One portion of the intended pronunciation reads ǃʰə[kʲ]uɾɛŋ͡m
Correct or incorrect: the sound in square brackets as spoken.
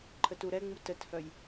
incorrect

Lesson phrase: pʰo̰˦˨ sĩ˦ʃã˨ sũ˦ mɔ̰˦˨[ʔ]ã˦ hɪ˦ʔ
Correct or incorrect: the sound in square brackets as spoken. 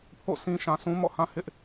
incorrect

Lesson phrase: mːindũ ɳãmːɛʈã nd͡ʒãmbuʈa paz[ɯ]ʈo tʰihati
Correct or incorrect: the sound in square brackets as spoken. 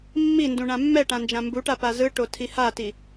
correct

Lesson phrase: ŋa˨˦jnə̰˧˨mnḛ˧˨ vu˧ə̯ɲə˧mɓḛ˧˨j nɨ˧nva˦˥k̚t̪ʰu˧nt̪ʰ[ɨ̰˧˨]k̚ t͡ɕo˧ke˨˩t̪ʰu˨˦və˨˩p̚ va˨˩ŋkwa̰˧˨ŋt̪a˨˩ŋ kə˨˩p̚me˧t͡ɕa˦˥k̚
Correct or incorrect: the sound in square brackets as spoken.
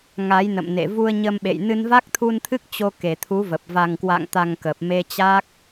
incorrect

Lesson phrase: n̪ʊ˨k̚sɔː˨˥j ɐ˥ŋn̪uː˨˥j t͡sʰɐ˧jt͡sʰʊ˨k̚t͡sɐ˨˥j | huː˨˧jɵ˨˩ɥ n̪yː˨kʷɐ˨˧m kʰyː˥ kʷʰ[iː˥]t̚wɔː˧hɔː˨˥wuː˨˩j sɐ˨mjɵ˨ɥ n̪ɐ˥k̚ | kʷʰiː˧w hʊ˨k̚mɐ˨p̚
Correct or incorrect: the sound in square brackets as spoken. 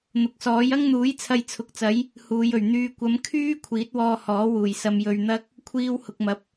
incorrect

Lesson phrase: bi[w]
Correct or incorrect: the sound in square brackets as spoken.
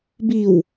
correct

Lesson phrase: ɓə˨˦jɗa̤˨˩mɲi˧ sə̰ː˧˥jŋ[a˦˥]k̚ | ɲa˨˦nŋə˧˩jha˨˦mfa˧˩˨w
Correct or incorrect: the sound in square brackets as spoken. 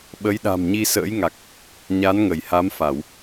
incorrect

